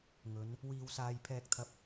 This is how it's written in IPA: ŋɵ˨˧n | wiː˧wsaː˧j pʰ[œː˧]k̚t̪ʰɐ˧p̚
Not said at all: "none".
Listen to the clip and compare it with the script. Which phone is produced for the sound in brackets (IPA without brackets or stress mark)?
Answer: ɛː˧